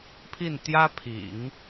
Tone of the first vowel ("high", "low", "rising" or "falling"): falling